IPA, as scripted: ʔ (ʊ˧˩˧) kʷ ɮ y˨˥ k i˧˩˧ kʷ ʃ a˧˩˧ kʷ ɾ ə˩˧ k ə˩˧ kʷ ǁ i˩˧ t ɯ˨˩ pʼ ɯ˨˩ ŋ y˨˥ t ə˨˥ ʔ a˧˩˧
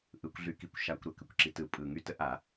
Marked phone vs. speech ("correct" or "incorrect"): incorrect